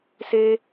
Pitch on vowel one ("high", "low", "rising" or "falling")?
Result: high